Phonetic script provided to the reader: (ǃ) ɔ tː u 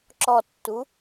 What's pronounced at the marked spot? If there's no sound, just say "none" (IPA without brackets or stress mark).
ǁ